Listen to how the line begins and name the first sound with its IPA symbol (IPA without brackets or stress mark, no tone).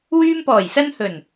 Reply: w